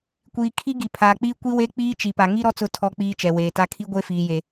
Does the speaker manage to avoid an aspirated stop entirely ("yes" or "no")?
no